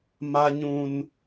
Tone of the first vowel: high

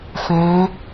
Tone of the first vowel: rising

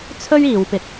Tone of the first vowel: high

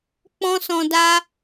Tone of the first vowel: high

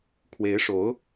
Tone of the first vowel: rising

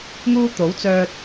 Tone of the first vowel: high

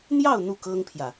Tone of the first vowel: falling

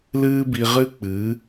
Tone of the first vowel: high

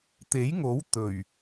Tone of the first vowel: rising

